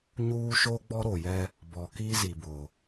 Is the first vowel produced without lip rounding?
no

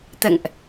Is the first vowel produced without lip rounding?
yes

